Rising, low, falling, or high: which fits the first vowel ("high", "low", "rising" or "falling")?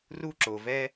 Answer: high